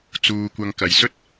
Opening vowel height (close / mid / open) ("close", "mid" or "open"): close